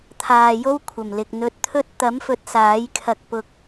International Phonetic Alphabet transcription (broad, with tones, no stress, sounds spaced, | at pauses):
t̪ʰ aː˨ j o˥ w kʷʰ ɐ˨˩ m l ɪ˨ k̚ n̪ ɵ˧ t̚ t̪ʰ ɵ˥ t̚ t̪ ɐ˨˥ m f ɵ˨˥ t̚ s aː˨˥ j kʰ ɐ˧ k̚ p ʊ˧ k̚